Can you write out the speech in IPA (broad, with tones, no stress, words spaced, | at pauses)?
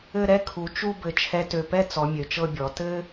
ɘ˥˧ɾɛ˥kʰu˩˧ t͡ʃu˥˧bɘ˧˩ t͡ʃʰɛ˧tø˧˩pɛ˥t͡sɔ˩˧ mʲø˩˧t͡ʃɤ˥˧bʲɔ˩˧ tɘ˥